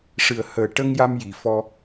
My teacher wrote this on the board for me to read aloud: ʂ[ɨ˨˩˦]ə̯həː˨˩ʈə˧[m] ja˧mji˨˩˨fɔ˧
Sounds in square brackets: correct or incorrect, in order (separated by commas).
incorrect, incorrect